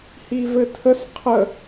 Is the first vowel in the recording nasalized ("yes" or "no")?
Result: no